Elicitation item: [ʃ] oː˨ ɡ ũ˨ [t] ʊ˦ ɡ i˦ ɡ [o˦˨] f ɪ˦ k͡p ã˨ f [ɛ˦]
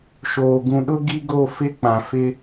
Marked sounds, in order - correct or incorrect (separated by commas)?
correct, incorrect, correct, incorrect